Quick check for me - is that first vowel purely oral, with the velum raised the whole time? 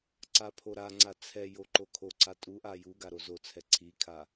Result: yes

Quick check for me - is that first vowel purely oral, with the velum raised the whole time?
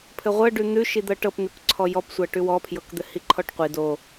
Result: yes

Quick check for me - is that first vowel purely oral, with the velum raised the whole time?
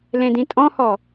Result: no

